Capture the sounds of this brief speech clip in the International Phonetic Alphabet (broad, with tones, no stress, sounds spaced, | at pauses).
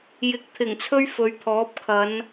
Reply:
j ɪ˨˥ k̚ t̪ʰ ɪ˨˩ ŋ t͡sʰ ɵ˥ ɥ f ɵ˨˧ ɥ t̪ʰ ɔː˨˥ p̚ kʰ ɐ˨˧ n